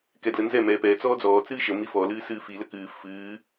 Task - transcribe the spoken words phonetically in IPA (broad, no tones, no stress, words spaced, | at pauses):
kɛdlənzɛ mɛːpɛː t͡sɔːd͡zɔː t͡sɨːʃə mifɔ lɨːsɨːfi ləkɨː fɨː